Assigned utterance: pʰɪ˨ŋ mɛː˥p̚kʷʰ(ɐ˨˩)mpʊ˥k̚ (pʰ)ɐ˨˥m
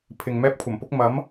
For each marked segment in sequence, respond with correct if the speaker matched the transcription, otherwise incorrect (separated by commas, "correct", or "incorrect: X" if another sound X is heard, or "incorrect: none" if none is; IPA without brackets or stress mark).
correct, incorrect: m